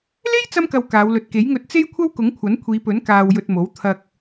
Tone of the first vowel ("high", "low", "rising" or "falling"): high